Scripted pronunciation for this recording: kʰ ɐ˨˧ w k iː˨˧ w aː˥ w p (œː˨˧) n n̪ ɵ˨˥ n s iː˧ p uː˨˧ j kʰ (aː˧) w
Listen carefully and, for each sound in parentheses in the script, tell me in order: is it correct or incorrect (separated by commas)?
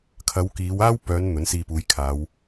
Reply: correct, incorrect